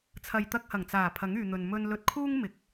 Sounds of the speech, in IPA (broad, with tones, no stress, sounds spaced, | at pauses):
t͡sʰ ɐ˨ j t̪ ɐ˧ k̚ h ɐ˨˩ ŋ t͡s aː˨˩ pʰ ɐ˨˥ ŋ yː˨ n̪ ɵ˨ n m ɵ˧ n l ɵ˧ t̚ kʰ uː˥ ŋ m ɪ˨ k̚